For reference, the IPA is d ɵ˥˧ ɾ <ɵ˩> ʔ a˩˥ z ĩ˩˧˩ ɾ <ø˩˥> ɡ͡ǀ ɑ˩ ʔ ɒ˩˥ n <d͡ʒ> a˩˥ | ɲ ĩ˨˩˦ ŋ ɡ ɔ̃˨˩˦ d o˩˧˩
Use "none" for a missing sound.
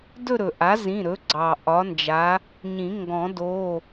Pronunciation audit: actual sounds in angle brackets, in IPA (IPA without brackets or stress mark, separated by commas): ɵ˩, ɵ˩˥, d͡ʒ